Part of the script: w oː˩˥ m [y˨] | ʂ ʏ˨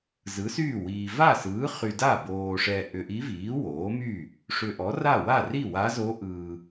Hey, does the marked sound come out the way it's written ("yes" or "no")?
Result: no